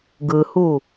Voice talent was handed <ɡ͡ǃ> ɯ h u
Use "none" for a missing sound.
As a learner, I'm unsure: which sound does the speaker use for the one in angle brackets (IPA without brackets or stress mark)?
ɡ